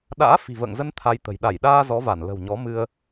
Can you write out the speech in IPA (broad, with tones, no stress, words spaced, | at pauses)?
ɗa̰ː˧˥fi̤˨˩və̰ː˧˨ŋzə˧n t̪ʰa˧jt̪ə̤˨˩j ɗa˧˩jɗaː˧ zɔ˨˦va˧˩n lə̤˨˩wɲɔ˨˦ mɨ˧ə̯